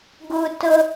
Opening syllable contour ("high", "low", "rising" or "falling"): high